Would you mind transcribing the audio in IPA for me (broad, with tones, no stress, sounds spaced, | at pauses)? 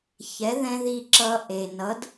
ç ɛ˩˥ ð ɛ̃˥ ð iː˧ ǁ ʌː˧ ʔ e˩ n ʌ˩˥ d